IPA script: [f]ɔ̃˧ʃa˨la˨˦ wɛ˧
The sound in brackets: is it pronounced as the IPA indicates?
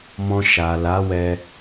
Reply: no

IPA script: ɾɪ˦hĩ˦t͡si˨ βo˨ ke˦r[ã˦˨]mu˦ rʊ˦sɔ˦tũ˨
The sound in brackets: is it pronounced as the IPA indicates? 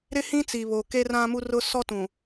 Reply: no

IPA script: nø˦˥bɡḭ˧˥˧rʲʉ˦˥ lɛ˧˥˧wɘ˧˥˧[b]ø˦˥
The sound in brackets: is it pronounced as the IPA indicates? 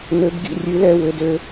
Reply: no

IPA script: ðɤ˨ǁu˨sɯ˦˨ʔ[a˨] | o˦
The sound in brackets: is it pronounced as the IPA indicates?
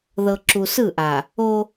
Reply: yes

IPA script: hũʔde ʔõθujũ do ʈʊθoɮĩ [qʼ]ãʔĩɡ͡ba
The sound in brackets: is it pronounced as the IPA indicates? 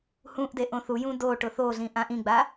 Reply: no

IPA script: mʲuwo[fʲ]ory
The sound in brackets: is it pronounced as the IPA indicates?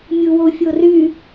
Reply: yes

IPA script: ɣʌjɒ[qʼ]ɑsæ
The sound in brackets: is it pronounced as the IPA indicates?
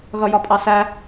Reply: no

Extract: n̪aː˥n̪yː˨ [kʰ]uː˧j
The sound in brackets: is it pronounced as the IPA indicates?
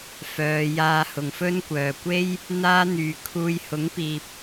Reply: yes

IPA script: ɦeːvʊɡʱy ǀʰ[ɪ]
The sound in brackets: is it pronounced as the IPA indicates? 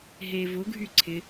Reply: yes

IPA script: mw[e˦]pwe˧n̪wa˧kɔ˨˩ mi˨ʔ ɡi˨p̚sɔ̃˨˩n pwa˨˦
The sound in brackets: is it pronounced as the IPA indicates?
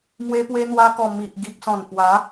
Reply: no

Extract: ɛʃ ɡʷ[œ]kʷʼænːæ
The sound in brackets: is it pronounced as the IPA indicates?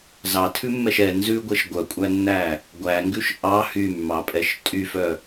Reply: yes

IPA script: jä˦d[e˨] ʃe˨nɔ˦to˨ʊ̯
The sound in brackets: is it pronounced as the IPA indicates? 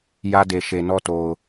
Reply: yes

